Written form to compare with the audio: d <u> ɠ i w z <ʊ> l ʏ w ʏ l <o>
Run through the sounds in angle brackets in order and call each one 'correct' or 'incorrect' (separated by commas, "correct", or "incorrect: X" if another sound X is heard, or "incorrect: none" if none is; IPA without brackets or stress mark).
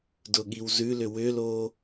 incorrect: ʊ, incorrect: ʉ, correct